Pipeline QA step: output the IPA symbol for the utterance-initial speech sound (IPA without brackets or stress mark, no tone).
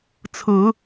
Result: t͡sʰ